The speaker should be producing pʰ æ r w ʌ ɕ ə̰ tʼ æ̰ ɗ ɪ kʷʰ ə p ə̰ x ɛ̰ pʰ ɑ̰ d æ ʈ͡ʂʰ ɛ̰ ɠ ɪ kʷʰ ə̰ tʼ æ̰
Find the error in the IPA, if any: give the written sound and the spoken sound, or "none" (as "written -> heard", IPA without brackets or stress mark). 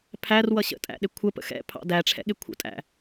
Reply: none